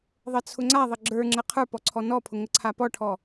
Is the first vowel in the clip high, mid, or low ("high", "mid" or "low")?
mid